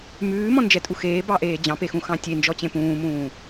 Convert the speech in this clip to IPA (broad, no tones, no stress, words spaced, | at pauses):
mʉːmɔ̃nd͡ʒɛtʼu xeːbɑʔeː d͡ʑɑ̃pexũxɑ̃ tʲend͡ʒɔt͡ɕẽ pũːmũː